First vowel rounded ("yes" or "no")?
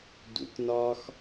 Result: yes